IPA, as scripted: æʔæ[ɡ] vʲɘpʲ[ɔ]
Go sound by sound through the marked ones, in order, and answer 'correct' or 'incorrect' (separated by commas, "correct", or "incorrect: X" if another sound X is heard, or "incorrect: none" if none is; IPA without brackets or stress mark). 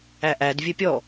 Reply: incorrect: d, correct